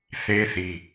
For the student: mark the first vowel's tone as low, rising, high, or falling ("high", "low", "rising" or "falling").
high